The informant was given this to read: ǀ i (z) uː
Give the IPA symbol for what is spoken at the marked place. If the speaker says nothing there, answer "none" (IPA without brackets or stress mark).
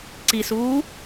s